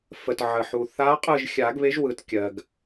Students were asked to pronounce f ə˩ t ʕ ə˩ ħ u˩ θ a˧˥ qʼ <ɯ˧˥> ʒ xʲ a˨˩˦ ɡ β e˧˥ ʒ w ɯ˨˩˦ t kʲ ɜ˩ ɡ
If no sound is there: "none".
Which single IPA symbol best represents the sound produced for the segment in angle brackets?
ɯ˦˨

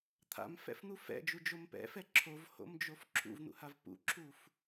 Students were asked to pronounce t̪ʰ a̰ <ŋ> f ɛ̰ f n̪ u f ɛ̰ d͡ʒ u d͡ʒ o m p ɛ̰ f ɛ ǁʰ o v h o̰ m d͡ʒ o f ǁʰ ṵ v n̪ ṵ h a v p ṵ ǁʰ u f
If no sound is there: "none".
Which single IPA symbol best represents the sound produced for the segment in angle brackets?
m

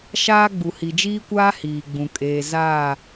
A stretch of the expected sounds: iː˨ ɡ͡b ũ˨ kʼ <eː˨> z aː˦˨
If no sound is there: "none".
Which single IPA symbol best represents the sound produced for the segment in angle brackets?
eː˨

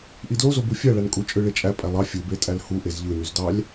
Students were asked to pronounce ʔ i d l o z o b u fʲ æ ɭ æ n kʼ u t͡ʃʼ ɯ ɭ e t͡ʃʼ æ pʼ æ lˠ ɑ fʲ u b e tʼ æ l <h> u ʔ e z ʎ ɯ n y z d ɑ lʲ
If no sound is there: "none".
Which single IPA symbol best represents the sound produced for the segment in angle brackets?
h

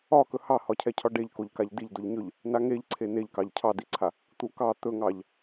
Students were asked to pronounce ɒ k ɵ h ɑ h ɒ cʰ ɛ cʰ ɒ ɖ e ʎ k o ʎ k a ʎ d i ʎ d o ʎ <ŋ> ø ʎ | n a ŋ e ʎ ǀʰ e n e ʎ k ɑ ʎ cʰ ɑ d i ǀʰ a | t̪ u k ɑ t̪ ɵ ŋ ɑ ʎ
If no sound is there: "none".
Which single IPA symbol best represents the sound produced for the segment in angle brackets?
ɲ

